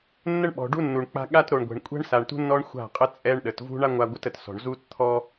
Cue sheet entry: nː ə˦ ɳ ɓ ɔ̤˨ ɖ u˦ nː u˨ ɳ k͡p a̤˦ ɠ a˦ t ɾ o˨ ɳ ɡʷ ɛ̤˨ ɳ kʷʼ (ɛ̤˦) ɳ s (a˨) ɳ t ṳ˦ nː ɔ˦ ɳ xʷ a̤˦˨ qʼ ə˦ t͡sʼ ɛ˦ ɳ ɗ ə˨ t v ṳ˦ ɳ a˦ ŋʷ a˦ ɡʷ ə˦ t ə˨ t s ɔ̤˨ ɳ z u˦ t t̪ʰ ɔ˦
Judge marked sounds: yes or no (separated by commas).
yes, yes